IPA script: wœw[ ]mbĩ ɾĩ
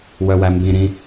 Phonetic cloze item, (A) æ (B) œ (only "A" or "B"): A